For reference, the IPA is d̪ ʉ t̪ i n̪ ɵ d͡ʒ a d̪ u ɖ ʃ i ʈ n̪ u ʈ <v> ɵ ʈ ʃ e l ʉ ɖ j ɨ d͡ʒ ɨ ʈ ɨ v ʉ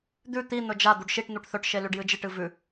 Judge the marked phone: incorrect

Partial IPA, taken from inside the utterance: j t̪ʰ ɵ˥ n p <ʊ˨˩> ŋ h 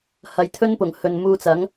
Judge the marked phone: correct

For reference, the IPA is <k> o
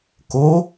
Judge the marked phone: correct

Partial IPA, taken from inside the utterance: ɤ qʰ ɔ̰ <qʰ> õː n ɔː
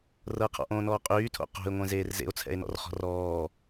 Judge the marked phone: incorrect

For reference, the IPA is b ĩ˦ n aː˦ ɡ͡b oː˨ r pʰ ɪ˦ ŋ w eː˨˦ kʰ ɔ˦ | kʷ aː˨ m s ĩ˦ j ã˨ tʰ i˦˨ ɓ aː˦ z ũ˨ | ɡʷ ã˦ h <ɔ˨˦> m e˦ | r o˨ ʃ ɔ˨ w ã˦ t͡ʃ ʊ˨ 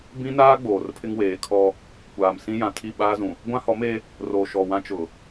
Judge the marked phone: correct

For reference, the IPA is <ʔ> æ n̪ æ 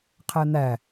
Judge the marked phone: incorrect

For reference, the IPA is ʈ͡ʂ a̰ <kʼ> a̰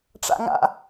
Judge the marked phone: incorrect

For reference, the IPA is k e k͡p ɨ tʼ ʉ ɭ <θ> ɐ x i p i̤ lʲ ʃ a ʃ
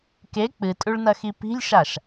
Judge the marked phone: incorrect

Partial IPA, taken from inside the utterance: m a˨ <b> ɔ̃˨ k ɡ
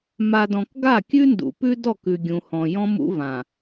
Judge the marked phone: incorrect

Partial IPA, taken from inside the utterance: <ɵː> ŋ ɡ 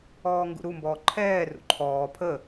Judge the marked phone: incorrect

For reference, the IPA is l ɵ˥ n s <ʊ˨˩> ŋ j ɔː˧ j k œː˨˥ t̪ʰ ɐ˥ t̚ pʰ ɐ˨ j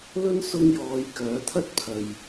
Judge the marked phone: incorrect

